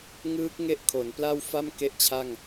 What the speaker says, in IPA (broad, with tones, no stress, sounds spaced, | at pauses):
ŋ ɯː˦˥ k̚ ŋ e˥˩ ʔ kʰ o˩˦ n p l a˥˩ w f a˥˩ m k e˥˩ ʔ t͡ɕʰ a˥˩ ŋ